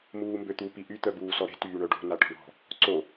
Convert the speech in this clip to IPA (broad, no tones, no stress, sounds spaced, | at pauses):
m uː m b ø t̪ u p i ʔ y t̪ œ b uː s ɔ ɾ e̤ t yː ɳ œ ɖ o̤ n a ʈ ɔ̤ ɳ ɔ̤ | ǀ o